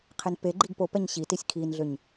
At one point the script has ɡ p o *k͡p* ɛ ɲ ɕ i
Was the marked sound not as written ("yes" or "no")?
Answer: yes